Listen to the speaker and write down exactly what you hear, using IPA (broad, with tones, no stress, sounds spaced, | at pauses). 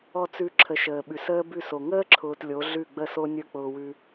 ɔ˥˧ t͡s ʉ˥ ǁʰ ə˨˥ ʃ əː˨ ɓ ʉ˨ s əː˥ b ʉ˥˩ s o˨ ŋ əː˥ ǁʰ ʊː˨ t lʲ o˨˥ ɮ ʉ˥˩ ɡ͡b ə˥˧ s o˥ nʲ ə˞˥˧ k͡p ʊː˨ w ʉ˨